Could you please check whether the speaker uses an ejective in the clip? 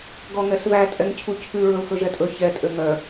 yes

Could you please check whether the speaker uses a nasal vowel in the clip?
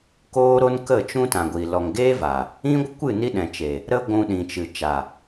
yes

